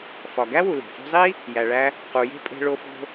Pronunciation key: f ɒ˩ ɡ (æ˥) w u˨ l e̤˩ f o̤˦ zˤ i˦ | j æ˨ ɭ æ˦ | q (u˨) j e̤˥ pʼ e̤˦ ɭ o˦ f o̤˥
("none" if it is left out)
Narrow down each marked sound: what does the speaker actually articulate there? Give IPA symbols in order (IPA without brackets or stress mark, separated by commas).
æ˥, u˨